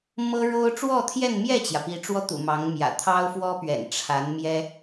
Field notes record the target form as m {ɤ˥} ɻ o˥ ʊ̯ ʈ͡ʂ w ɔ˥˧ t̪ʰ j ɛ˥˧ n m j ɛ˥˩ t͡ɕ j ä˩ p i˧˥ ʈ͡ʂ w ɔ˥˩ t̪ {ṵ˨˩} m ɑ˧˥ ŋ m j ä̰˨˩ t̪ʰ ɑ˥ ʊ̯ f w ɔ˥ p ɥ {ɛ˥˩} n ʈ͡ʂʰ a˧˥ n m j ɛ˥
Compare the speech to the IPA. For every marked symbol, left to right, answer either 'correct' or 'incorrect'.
correct, correct, incorrect

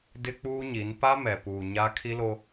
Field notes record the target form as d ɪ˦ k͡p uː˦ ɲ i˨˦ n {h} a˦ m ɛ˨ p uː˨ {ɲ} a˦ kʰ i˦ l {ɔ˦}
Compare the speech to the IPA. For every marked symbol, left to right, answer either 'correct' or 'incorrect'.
incorrect, correct, incorrect

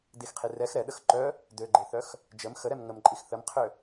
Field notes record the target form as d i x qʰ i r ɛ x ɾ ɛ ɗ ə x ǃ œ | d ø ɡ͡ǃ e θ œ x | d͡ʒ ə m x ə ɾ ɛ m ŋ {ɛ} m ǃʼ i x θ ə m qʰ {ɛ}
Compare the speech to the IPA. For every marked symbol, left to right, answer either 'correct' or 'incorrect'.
incorrect, incorrect

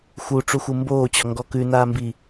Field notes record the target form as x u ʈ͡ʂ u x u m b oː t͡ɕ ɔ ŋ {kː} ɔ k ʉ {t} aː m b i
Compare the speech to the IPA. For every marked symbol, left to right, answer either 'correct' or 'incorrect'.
incorrect, incorrect

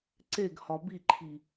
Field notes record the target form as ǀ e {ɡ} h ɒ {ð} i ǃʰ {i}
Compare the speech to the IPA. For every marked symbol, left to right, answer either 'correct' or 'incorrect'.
correct, incorrect, correct

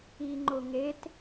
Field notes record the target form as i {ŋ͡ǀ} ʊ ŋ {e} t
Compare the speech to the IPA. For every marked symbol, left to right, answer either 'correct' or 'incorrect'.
incorrect, correct

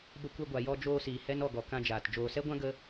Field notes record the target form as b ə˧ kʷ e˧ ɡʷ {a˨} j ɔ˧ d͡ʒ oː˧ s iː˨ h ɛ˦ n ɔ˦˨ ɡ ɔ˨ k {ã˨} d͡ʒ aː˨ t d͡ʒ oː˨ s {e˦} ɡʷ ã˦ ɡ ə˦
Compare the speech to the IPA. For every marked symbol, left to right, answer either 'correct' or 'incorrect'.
correct, incorrect, incorrect

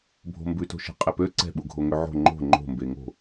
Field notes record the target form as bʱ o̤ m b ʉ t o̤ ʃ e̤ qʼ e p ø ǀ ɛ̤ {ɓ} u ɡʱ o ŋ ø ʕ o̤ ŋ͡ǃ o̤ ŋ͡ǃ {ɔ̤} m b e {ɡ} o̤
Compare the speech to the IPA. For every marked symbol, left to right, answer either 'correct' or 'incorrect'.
correct, incorrect, incorrect

